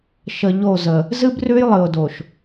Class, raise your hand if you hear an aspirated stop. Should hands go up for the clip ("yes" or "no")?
no